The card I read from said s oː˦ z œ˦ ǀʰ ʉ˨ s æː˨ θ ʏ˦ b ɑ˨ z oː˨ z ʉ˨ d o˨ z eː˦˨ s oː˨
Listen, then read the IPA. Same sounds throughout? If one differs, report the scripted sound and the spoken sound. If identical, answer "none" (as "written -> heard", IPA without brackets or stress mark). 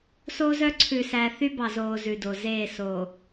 ʏ˦ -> y˦